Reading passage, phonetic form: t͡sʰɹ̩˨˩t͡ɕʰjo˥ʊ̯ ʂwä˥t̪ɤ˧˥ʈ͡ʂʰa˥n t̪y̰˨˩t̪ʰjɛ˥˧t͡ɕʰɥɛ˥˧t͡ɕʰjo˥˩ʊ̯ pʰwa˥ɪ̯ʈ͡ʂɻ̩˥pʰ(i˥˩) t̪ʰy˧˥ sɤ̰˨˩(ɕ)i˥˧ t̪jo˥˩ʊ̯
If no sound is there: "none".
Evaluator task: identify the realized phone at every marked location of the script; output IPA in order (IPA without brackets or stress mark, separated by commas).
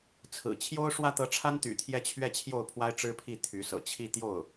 i˥˩, t͡ɕʰ